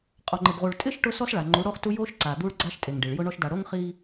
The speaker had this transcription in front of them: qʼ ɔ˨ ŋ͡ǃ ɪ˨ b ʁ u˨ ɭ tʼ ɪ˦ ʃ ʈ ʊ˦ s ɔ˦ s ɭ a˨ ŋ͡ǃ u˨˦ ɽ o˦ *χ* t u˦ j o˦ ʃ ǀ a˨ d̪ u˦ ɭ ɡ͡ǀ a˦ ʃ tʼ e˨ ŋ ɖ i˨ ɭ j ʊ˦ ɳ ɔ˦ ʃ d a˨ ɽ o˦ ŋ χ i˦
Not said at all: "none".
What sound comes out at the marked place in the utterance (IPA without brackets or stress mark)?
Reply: χ